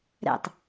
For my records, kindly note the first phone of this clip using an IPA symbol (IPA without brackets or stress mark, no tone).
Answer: ɾ